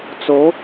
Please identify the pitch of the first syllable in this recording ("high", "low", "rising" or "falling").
rising